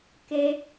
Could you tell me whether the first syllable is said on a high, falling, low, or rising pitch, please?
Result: high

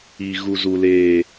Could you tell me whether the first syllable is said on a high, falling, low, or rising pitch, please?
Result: high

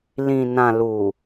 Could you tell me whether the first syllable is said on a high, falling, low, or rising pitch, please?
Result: low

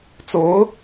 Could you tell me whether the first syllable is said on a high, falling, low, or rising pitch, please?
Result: rising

